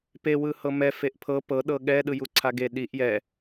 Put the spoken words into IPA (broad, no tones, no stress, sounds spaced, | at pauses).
p e w ɯ h ɤ m ɛ f e ʔ pʰ ɤ p ɤ ɗ ɤ ɠ ɛ ɗ ɯ j u ǀʰ a ɡ e ɗ i ʔ j ɛ